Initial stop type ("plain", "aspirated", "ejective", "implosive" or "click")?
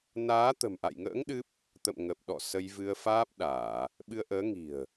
plain